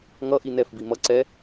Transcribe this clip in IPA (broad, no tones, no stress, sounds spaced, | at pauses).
ŋ ʌ ʔ i n ɛ f b i m ʌ ǀ ɛ